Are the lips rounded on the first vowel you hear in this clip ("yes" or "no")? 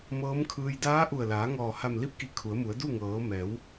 no